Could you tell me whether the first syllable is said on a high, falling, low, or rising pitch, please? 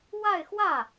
falling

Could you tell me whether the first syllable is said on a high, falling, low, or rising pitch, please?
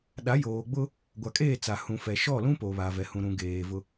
rising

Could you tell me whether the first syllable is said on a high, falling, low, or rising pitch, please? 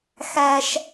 high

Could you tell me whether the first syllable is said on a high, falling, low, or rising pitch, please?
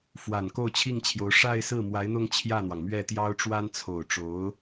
low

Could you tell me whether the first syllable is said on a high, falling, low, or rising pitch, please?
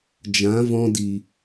rising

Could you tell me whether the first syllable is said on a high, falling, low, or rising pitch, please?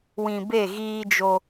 low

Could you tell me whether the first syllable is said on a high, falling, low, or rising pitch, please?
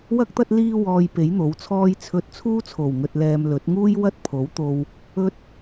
high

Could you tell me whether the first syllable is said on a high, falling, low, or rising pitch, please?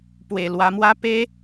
low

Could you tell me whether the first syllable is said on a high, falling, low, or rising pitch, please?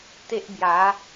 high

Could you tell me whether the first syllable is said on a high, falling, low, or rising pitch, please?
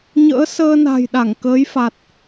rising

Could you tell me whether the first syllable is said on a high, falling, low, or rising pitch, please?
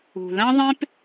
low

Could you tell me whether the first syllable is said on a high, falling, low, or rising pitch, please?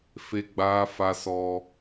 high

